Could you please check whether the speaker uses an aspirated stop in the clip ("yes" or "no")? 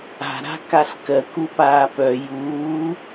no